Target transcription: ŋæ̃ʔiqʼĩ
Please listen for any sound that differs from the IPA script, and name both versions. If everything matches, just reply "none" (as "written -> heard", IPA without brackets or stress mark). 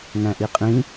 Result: none